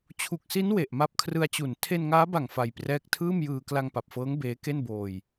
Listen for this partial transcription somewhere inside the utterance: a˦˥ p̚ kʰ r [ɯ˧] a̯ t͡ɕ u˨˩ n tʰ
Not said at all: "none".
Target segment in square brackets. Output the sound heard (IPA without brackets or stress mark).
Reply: ɯ˧